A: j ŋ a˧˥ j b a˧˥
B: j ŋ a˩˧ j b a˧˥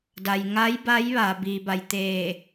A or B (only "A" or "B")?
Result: A